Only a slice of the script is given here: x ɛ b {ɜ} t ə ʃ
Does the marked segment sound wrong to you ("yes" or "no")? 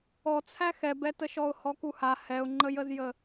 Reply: yes